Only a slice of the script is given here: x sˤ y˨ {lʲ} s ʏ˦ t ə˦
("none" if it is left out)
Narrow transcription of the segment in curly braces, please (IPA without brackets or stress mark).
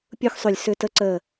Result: lʲ